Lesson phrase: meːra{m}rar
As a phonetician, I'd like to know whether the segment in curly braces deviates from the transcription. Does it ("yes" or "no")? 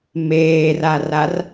yes